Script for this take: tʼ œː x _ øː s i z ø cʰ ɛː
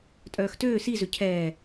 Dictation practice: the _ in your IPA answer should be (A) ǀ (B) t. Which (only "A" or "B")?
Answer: B